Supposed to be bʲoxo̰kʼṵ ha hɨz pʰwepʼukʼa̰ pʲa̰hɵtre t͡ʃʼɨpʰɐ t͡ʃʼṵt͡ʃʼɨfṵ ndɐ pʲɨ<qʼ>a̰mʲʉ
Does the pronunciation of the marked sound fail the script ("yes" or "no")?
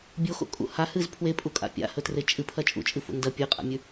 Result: no